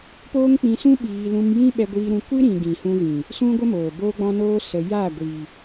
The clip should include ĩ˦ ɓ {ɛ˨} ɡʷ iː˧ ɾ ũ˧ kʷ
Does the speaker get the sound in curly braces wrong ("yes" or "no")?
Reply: yes